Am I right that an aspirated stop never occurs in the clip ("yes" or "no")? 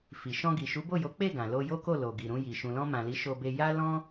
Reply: yes